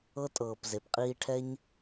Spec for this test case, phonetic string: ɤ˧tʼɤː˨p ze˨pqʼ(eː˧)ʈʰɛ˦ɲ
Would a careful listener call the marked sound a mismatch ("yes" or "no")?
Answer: yes